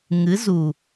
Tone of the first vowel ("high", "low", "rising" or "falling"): rising